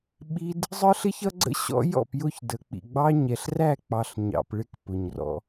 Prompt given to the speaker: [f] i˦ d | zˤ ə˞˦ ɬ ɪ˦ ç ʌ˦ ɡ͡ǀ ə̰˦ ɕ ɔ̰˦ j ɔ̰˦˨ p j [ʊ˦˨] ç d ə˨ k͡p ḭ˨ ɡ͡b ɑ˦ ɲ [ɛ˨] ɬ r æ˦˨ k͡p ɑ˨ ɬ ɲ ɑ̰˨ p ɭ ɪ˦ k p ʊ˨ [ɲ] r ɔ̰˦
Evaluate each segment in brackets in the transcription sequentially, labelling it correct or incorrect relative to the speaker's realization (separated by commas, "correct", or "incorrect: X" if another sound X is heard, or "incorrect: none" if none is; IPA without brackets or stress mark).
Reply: incorrect: ɓ, correct, correct, correct